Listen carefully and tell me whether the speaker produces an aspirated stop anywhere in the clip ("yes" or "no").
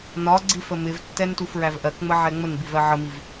no